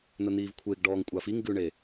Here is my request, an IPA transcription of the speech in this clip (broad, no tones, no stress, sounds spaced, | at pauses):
n̪ ə n̪ iː v kʷʰ e ɡ ɖ ɔː ŋ kʷʼ a f i ŋ ɡ ʉ ɳ e